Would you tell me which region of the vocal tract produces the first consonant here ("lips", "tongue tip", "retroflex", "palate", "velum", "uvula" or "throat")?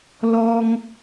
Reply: tongue tip